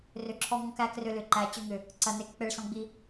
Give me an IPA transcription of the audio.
r ʏ˧˩ ǁʰ ɔ˧ ŋ ɔ̃˧ k æ˧ k r ʏ˧ l ʏ˧˩ ǃ æ˧˩ t͡ɕ ʏ˧ ŋ ʏ˧˩ | ǀ ɐ˧˩ n e˧˩ k k͡p e˧ ɭ s ɔ̃˧ ɡ͡b i˧

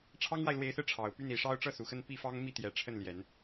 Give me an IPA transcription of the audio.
ʈ͡ʂʰ ɑ˥ ŋ w a˨ ɪ̯ l w e˧˥ ɪ̯ s ɹ̩˧ ʈ͡ʂʰ ɑ˨˩ ʊ̯ p y˥˩ n i˨˩ ʂ ɑ˥ ʊ̯ ʈ͡ʂ ɤ˥˩ s u˨˩ x ə˥˧ n p i˥˩ f ɑ˥ ŋ m i˥˩ t̪ j ɛ˨˩ ʈ͡ʂʰ ə˥˩ n l j ɛ˨˩˦ n

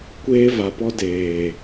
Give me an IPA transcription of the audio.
kʷ eː˧ v a˨ p ɔ˧ d eː˨

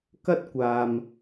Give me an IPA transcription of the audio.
k ɐ˥ t̚ kʷ aː˨ m

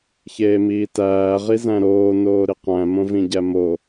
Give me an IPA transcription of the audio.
ç eː m iː t æː ʁ i z æ̃ ɾ oː n oː ɾ i q æ̃ m õ v ĩ ɟ æ m o

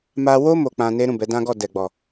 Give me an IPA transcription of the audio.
m a˧ w o˦ m o˧ k͡p ã˧ n e˦ ɾ ũ˦˨ b ɛ˨˦ d ã˦ ɡ ɔ˦˨ d ɛ˨ ɡ͡b ɔ˨

